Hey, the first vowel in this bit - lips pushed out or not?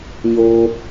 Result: yes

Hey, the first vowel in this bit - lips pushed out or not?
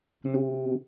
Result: yes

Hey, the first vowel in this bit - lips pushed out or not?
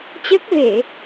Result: no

